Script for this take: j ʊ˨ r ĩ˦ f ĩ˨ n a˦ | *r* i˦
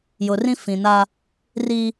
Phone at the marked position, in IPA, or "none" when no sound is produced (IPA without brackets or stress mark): r